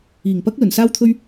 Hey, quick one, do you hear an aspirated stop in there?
yes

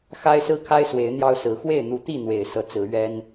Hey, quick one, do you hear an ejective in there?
no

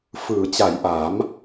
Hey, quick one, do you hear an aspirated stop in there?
no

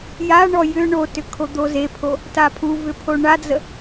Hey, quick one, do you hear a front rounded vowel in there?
yes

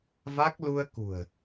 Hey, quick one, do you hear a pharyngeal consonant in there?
no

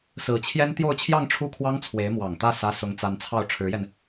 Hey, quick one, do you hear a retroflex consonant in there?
yes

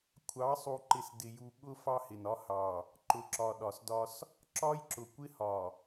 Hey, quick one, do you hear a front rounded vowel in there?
no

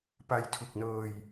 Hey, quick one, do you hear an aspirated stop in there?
yes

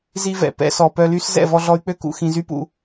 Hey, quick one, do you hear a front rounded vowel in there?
yes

